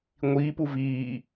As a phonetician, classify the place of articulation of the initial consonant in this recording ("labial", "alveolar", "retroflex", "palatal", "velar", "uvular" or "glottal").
velar